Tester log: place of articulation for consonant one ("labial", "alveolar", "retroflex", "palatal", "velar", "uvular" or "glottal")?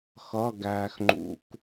velar